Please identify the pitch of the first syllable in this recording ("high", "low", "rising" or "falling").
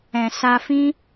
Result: low